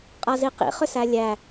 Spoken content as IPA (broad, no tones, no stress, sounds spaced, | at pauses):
qʼ a z i q ḭ χ ʏ s æ lʲ æ